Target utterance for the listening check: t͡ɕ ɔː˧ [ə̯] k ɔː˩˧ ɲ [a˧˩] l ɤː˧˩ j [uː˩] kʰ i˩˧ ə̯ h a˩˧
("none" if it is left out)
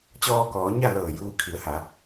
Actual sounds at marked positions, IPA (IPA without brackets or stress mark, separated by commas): none, a˥˨, uː˧